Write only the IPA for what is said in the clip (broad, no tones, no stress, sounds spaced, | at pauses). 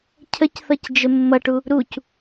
cʰ ə c θ ʌ c d͡ʒ ə mː ʌ ʈ u | ɾ u c